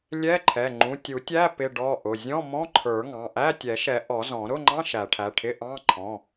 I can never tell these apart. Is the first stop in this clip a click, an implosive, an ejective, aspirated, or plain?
click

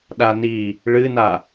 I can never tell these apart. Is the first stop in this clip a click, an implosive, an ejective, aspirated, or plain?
implosive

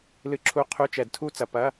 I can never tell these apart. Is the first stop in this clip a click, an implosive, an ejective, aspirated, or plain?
click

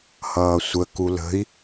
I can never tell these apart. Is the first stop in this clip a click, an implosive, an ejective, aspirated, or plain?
plain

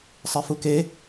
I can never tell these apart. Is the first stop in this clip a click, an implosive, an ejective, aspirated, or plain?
plain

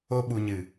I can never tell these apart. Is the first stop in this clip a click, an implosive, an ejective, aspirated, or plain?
implosive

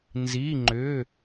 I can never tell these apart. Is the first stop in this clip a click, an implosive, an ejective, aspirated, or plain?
click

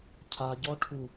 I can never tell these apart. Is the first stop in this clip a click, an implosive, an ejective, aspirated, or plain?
aspirated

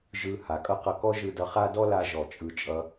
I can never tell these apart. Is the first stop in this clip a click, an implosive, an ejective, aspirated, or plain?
ejective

